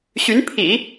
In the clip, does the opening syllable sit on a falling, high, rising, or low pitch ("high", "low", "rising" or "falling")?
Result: rising